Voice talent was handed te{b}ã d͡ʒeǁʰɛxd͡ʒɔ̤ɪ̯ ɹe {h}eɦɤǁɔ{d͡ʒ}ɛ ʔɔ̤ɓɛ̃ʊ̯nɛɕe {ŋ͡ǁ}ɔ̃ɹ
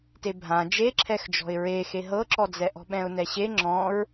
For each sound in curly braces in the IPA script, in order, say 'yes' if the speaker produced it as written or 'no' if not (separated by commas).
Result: no, no, no, yes